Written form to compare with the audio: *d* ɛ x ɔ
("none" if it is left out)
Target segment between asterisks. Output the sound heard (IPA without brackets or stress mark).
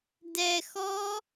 d